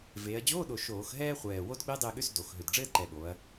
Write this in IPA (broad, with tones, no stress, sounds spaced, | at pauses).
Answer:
v eː˩˧ ɐ̯ d͡ʑ oː˧˥˧ ɗ o˨˩ ʃ oː˧˩˧ x ɦ ɛː˥ χʷ ɛː˨˩ w o˥ d ɡ͡b e˥ dˤ e˦˨ ɠ ʏ˧˥˧ s d o˩˧ x ɦ ʏ˨˩ d ɖ͡ʐ ɘː˥ d ǃ ɛ˨˩ ɓ oː˩˧ ɐ̯